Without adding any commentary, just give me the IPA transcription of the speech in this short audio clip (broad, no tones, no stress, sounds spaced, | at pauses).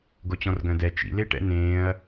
ɡ o t͡ɕ ɔ̃ r ɡ œ̃ d ɛ t͡ʃ ḭ l e ʈ ɛ̰ n ẽː ɐ̯